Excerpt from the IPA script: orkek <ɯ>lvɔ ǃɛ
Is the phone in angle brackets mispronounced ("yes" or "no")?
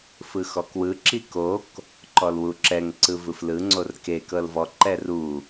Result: yes